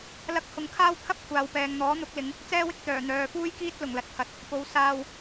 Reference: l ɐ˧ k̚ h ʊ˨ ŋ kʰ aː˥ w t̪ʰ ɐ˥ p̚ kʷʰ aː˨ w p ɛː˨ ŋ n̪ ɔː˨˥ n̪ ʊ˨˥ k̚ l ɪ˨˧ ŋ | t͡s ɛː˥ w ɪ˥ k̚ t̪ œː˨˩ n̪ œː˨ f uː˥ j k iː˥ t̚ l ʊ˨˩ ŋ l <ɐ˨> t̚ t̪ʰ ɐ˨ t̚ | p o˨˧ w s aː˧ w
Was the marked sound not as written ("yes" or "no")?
no